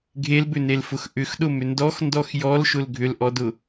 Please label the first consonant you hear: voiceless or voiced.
voiced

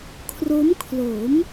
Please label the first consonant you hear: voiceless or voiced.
voiceless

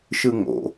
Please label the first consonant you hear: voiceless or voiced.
voiceless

